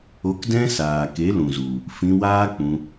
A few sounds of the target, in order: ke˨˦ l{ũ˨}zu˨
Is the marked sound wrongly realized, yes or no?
no